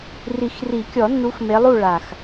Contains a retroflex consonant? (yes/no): yes